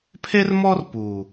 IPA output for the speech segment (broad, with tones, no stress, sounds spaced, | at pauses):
pʰ e˦ r m ɔ˦ r p uː˨